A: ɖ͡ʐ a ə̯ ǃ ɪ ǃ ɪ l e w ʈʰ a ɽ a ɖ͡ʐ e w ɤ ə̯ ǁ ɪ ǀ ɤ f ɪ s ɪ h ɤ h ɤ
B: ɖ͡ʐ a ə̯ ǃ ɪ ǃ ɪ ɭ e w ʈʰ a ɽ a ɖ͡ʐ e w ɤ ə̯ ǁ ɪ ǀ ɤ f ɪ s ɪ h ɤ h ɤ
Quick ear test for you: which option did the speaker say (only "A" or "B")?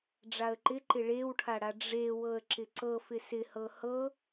B